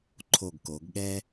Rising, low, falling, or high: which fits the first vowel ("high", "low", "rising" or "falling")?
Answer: low